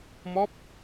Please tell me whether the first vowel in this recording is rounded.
yes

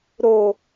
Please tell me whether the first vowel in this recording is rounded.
yes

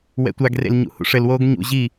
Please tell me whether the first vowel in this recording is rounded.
no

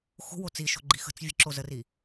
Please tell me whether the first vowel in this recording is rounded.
yes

